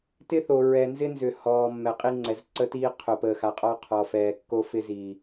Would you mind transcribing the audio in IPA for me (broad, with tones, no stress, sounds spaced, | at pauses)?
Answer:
t ɪ˦ θ o˨ ɹ ɛ˨ n z ɪ˦ n z ʏ˨ h ɔː˨ mː ɛ˨ qʼ i˦ ŋ͡ǀ ɛ˨ z ǀ ə˦ t iː˦ qʰ o˨ p əː˨ x a˨ qʼ ɔ˦ qʰ ɔ˨ f ɛː˨ kː o˦ f ɪ˦ z iː˨